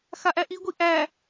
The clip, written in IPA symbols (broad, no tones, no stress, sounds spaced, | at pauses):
x a ʔ æ ʔ i ɡʷ i ʔ æ